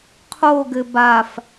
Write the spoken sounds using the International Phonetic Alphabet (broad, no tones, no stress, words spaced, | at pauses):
qʰoɡɘ baf